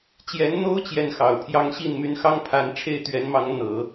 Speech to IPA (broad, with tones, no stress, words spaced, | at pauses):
t͡ɕjɛ˧˥nn̪o˥ʊ̯ t͡ɕjɛ˥˩nxɑ˨˩ʊ̯pʰjɑ˥ŋ ɕi˥˩nmy˧˥nxɑ˥ŋ pʰa˧˥n ʈ͡ʂʰe˥˩ɪ̯t̪ɥɛ˧˥nmɑ˧˥ŋ n̪ɤ˨˩˦